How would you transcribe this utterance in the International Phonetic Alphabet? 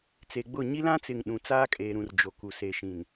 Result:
t͡s e˨ ɡ͡b ʊ˦˨ ɲ i˦ l ã˦ t͡s ɪ˨ ŋ ɗ ũ˨ t͡s aː˦ kʼ eː˨ ɾ ũ˨ r d͡ʒ o˨ k u˨ s e˨ ʃ ĩ˨ n

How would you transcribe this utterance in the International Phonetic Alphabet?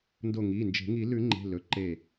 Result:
n d o˧˩ ŋ i˩˧˩ n d͡ʒ e̤˨˩˦ ŋ i˨˩˦ l ʉ˨˩˦ ŋ͡ǃ e̤˩˧˩ l ɵ˩˧˩ ǃ e˧˩

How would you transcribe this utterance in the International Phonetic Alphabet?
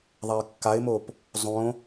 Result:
ðˤ a ɪ̯ kː a ɪ̯ m o p | zˤ õ

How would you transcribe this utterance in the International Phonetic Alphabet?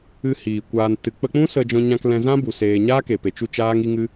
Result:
ɨ˧ h iː˨ kʷ aː˨ n t ɨ˨ k͡p ə˧ k͡p ũ˦ s ə˧ d͡ʒ ɔ̃˧ ɲ ã˧ k l ɛ̃˧ z ã˦ b u˨ s eː˧ ɲ aː˦ k e˨ p e˨ t͡ʃ u˧ t͡ʃ aː˦ ŋ i˦ ŋ ɨ˦

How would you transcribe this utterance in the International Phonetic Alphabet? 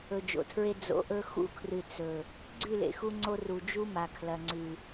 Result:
ɵ˨ d͡ʒ o̰˨ tʰ ɹ e˦ d͡z o̰˧ ʔ ɵ˦ x ṵ˧ kʰ r ɨ˨ t͡s ɵ˨ | ɡ͡ǀ ʉ˦˨ l ḛ˨ x u˧ ŋ͡ǀ o˧ r u˨ d͡ʒ u˦ m a˨ kʰ l ɐ˨ ŋ͡ǀ ʉ˨

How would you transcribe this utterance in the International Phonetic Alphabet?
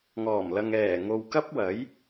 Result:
ŋ ɔː˨˩ m l ɐ˨ ŋ ɛː˨˩ ŋ o˨ w k ɐ˥ p̚ w ɐ˨˥ j

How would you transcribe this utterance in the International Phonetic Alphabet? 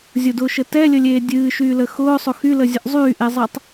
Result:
zʲ ʊ d ʊː ʃ ə t ɛ lʲ ə lʲ eː dʲ ɨː ʃ yː l ə x ʊː sˤ ʊ x y l ə zʲ ə ʔ zˤ yː ʔ e zˤ e tˤ

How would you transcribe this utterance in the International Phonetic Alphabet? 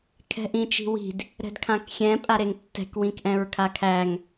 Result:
kʰ ɛ̤ ʔ ĩ t͡ʃ i̤ w i̤ d | ɾ ɛ̤ d kʰ ã k xʲ ɛ̃ pʼ a ɾ e ŋ tː ɛ̤ k w ĩ k ʔ ɛ̃ ɹ kʰ a kʰ æ ŋ

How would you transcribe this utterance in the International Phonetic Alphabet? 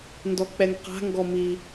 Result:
n d ɔ k͡p ɛ ŋ q a̤ ŋ ɡ ɔ m i

